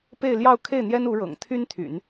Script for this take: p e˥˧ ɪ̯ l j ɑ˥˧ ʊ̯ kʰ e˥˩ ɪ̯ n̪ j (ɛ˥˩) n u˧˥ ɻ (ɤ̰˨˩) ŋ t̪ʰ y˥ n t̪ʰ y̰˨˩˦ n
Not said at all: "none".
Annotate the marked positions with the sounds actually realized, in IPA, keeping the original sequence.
ɛ˥, ɤ̰˨˩

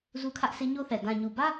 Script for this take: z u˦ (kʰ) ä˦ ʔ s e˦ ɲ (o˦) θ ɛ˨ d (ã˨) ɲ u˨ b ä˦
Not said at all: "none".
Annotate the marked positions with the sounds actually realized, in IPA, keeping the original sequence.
kʰ, o˦, ã˨

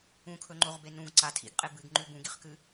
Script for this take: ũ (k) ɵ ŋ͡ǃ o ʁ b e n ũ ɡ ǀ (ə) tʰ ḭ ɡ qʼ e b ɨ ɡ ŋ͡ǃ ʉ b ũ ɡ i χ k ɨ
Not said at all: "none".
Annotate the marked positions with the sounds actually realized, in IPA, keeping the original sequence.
kʰ, a

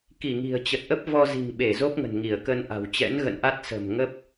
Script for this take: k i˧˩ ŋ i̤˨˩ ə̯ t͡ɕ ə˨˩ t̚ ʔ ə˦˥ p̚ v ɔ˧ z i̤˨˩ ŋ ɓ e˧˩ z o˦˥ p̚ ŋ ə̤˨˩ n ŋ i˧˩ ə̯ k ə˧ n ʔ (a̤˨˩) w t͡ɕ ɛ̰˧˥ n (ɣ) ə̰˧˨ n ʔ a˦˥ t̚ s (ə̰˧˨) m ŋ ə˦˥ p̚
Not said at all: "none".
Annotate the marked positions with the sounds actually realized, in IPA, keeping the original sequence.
a̤˨˩, ɣ, ə̤˨˩

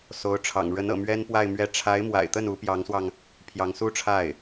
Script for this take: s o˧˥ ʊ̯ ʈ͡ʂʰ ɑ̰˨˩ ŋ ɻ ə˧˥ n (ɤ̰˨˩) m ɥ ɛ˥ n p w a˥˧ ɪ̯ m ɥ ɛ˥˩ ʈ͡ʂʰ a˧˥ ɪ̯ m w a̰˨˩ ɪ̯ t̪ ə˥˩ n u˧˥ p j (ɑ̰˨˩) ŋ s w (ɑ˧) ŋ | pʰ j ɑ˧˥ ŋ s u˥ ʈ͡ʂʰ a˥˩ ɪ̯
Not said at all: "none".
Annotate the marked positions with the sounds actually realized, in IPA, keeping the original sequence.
ɤ̰˨˩, ɑ˧˥, ɑ˧

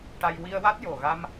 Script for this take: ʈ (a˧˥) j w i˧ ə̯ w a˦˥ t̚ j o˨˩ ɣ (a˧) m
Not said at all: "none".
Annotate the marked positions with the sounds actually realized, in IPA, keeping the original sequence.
a˧, a˧

